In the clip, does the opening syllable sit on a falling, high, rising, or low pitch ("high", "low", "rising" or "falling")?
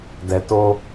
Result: low